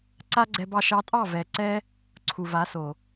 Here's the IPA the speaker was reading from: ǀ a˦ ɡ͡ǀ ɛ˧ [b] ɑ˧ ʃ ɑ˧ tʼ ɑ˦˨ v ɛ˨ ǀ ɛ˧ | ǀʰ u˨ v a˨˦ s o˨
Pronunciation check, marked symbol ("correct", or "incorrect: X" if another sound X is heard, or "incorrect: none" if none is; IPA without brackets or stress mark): correct